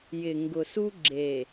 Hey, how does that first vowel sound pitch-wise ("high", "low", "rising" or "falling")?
low